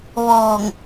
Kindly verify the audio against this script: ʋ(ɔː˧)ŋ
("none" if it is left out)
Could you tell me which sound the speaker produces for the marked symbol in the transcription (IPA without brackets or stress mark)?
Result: ɔː˧˩